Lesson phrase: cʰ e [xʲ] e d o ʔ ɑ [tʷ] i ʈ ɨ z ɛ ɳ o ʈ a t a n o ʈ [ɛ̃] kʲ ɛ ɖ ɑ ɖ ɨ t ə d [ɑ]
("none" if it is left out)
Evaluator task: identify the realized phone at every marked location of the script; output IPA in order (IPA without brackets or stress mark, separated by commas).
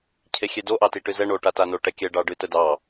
xʲ, t, ɛ, ɑ